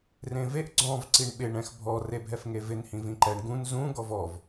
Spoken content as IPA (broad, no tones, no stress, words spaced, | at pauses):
rẽveʔ ɡ͡ǀɔ̃v ǀiɳɓɪɳ ɛ̃xbʱɔ rebʱɛfŋevɪn hĩvĩǃɛɳ ɡũn zũ ɡɔvɔv